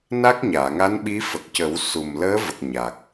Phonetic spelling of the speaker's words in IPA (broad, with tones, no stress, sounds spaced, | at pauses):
n a˦˥ k̚ ɲ aː˨˩˨ ŋ a˧˥ n ɓ i˧˥ f ə˨˩ k̚ c ə˨˩˦ w s u˨˩ m l əː˧˥ v ə˨˩ k̚ ɲ a˨˩ k̚